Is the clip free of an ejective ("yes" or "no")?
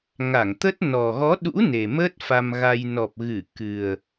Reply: yes